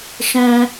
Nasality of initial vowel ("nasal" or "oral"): nasal